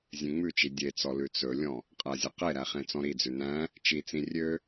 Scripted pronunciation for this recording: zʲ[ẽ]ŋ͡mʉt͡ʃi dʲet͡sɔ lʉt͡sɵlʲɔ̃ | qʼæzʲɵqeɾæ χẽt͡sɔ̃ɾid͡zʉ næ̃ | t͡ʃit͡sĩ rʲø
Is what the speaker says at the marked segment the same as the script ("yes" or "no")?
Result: yes